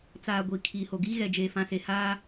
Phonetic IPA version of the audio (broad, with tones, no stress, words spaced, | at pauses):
t͡saː˨ ɡʷi˨ kʰiː˨ho˨ɡiː˦ɣɛ˨ d͡ʒeː˨fã˨se˨ haː˦